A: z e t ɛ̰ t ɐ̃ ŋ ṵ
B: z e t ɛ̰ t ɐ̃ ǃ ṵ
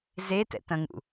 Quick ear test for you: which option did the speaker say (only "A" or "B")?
A